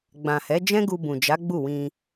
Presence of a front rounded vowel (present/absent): absent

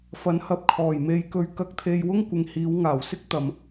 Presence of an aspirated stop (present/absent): present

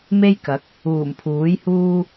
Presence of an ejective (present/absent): absent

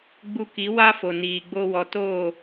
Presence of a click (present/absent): absent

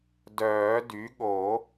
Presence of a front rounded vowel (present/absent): present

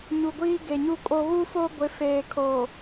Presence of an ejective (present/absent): present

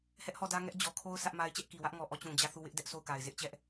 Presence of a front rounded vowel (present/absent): absent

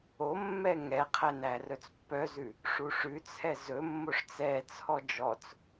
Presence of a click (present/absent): absent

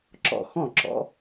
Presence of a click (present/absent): present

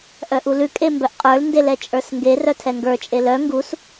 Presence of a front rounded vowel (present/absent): present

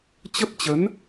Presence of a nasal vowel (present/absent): absent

